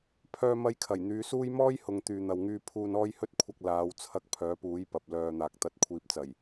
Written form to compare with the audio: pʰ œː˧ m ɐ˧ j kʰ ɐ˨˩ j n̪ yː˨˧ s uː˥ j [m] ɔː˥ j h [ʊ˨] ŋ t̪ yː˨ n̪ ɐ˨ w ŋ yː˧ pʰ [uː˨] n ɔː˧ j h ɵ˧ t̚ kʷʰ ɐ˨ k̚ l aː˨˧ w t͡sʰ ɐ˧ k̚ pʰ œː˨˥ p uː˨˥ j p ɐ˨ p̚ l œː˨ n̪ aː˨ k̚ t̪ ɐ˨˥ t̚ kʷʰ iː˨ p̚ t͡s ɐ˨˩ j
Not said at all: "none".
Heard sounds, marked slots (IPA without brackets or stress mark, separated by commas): m, ʊ˨, uː˨